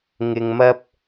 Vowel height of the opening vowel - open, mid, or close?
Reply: close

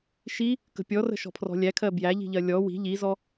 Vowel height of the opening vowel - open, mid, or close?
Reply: close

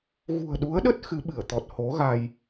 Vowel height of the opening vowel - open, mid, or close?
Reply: close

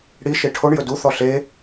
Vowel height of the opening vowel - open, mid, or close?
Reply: close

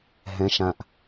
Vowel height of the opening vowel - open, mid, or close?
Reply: mid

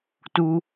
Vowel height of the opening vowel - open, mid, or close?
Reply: close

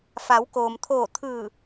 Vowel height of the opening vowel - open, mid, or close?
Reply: open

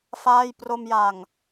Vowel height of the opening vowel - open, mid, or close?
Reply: open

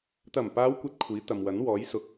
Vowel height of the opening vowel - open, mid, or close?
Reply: open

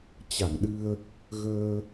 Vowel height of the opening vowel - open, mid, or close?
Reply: open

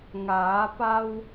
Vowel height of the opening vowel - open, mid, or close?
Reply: open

